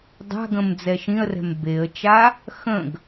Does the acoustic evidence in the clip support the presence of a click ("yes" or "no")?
no